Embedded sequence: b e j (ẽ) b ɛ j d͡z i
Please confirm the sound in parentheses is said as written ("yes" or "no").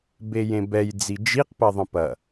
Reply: yes